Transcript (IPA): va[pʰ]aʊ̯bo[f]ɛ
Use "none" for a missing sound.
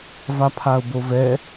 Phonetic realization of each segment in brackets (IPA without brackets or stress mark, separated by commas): pʰ, v